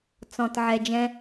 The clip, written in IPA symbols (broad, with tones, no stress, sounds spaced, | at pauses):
t͡s ɔ̃˨ t ʕ ɛ˨ d͡ʒ ɛ̃˧